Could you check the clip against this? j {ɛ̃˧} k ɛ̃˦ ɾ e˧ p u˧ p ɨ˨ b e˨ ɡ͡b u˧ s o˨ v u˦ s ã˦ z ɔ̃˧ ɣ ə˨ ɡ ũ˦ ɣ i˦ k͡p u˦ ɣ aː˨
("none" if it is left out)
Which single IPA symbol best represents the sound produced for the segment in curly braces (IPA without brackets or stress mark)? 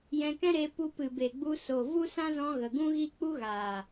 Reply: ɛ̃˧